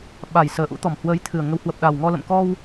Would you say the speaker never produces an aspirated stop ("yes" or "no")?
no